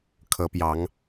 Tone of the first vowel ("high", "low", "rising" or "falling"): rising